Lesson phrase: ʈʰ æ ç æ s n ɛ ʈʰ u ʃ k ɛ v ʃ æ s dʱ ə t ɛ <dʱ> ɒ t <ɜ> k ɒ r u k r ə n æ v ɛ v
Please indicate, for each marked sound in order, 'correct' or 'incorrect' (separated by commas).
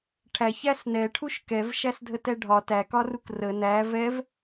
incorrect, incorrect